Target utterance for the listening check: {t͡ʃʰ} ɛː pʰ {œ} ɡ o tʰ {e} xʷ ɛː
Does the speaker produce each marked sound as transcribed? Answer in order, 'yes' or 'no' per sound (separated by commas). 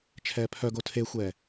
yes, yes, yes